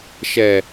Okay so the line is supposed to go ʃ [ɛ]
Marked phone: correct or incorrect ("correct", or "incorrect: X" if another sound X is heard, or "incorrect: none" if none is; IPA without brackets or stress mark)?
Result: correct